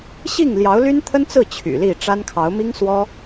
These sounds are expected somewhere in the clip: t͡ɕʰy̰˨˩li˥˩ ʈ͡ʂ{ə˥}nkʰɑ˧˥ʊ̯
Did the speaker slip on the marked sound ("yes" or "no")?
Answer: yes